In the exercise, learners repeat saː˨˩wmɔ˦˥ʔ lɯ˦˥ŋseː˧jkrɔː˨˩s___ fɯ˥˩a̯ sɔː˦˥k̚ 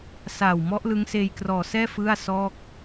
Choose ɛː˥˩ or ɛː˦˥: ɛː˥˩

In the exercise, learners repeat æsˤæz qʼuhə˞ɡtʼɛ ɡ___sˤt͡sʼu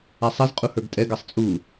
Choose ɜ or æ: ɜ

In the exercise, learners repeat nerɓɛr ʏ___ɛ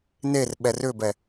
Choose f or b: b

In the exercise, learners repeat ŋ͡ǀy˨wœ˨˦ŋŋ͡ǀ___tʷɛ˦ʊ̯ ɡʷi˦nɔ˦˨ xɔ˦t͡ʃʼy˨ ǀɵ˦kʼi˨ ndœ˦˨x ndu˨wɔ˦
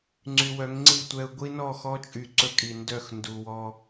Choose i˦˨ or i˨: i˦˨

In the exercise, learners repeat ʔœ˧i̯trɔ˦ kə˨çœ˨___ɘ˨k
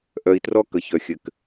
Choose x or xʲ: xʲ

